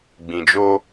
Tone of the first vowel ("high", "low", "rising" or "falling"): low